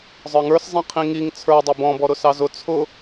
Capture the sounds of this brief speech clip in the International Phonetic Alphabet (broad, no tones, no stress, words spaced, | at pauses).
zˤə˞ŋə˞szˤĩ qʰĩŋiŋ t͡sʰə˞dˤʊ bɔ̃bɔɾʊ sɑzʊ t͡sʰʊ